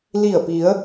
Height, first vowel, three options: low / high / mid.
high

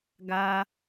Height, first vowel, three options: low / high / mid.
low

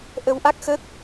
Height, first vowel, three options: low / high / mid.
mid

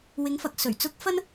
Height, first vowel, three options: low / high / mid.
high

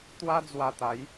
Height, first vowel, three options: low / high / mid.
low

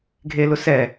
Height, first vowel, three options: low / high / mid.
mid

